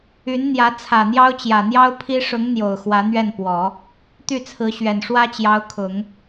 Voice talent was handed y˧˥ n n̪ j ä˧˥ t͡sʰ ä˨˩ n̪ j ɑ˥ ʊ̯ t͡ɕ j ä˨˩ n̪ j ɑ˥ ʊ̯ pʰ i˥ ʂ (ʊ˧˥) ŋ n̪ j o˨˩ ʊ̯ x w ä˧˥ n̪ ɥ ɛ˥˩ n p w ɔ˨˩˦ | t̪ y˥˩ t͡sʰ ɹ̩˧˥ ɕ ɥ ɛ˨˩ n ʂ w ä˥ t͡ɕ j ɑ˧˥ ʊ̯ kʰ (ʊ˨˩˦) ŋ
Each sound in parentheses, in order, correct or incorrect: correct, correct

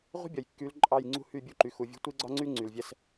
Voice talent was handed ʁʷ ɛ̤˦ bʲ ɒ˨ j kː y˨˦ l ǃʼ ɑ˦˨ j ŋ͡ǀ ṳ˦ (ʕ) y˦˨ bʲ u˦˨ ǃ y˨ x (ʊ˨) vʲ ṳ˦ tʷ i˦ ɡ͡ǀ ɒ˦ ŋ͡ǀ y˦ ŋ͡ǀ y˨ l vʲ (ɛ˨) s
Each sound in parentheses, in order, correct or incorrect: incorrect, incorrect, incorrect

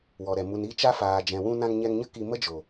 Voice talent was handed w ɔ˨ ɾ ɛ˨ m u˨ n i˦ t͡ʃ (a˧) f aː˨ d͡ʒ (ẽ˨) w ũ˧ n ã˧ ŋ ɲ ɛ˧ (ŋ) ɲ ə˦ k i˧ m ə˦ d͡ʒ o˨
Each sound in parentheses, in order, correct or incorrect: incorrect, incorrect, correct

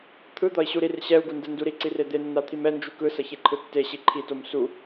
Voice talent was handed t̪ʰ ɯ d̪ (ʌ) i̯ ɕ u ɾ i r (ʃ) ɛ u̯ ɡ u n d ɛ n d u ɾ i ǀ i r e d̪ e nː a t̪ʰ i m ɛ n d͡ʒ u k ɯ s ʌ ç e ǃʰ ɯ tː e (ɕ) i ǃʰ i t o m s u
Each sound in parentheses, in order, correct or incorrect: correct, incorrect, correct

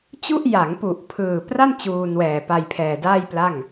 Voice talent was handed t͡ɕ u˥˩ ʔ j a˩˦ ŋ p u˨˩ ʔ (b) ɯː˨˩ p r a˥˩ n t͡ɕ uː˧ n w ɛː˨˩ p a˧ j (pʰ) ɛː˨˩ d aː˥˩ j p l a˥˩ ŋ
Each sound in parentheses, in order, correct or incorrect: incorrect, correct

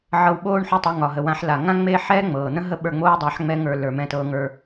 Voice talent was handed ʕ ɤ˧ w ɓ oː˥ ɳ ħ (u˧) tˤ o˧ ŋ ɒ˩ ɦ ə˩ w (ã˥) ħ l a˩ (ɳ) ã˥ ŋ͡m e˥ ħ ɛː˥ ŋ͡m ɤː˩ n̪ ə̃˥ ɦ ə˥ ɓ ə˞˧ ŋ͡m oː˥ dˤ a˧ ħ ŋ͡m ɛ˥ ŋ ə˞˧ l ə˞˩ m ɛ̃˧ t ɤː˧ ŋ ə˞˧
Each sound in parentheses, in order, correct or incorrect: correct, incorrect, incorrect

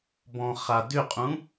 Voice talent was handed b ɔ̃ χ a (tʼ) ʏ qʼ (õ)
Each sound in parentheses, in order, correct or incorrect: incorrect, incorrect

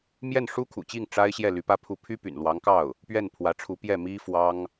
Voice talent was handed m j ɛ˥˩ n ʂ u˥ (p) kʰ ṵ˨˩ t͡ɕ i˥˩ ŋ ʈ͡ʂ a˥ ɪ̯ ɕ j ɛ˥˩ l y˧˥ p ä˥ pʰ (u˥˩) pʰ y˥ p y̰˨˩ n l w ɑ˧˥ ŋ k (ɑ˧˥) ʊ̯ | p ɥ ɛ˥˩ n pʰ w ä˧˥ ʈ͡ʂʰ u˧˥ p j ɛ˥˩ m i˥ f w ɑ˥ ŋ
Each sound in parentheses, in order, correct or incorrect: incorrect, correct, incorrect

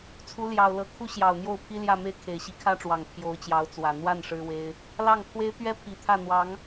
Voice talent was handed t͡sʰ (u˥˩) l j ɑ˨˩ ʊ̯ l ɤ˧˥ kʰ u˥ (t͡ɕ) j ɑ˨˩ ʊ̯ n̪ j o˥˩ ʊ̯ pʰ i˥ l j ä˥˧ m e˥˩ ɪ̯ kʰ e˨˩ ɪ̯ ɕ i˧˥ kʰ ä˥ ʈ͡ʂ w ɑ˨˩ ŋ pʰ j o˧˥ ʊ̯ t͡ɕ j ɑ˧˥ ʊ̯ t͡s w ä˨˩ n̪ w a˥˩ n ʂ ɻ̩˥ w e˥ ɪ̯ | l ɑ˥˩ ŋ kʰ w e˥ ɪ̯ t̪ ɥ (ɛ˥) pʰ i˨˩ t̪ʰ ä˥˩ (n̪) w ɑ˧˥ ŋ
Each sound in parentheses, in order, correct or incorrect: incorrect, incorrect, correct, correct

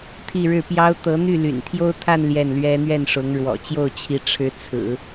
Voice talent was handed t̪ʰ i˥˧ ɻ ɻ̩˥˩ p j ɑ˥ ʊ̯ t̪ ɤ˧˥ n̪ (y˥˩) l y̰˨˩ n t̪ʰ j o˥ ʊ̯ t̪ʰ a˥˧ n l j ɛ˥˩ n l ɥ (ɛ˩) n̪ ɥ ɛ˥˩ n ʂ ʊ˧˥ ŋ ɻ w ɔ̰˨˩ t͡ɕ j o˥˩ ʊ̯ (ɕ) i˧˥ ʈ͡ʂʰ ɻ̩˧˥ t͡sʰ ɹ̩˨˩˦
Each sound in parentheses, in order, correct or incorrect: correct, incorrect, incorrect

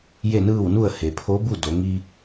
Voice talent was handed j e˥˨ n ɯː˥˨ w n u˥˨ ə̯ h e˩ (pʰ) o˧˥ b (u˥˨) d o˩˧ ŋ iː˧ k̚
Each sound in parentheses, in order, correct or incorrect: correct, correct

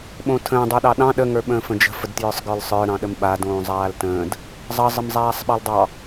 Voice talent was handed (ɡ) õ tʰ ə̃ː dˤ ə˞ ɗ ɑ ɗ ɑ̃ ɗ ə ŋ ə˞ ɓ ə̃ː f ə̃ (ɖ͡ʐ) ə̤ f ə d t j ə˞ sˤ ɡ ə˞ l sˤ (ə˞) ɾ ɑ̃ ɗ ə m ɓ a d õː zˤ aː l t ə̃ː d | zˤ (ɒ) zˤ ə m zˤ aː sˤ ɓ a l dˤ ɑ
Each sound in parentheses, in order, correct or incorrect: incorrect, incorrect, correct, incorrect

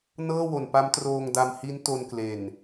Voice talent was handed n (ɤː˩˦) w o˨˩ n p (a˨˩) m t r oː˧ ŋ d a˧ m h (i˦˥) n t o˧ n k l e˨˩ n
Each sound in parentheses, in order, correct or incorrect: incorrect, incorrect, correct

